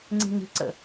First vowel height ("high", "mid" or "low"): high